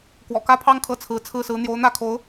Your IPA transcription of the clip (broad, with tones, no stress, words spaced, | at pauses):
kwɔ̰˨˩kä˥pʰɑ˥ŋ kʰɤ˥˩t͡sʰɹ̩˧˥t͡sʰɹ̩˥˩sɹ̩˧˥ n̪jo˧˥ʊ̯n̪ä˥˩kʰo˧˥ʊ̯